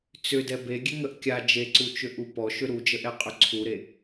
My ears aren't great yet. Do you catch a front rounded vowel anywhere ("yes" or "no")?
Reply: yes